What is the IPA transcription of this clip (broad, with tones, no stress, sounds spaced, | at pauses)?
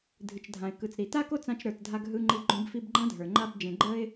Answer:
dʱ ɨ˨ t͡ʃ dʱ ã˨ ɪ̯ k ɯ˨ t͡s ɾ i˨ t a˦ k o˦ t͡s ã˧ t͡ʃ ɾ ə˞˨ t dʱ a˧ ɡ ɦ ɯ˧ ŋ͡ǃ i˧ ɡ͡ǃ õ˧ b f i˧ b ɡ͡ǃ ã˦ dʱ ə˞˨ ŋ͡ǃ a˦ b d͡ʒ ẽ˧ ɡ͡ǃ ə˦ ɪ̯